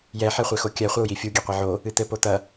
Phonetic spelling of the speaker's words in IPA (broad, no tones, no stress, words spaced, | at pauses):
jɛ ħɛχʷexokʲɛ χʷɐu̯jifʲu ɡʲeqʷeʕo | ɨt̪ɘ pot̪ɐ